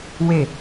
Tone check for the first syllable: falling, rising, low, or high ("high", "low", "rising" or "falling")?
falling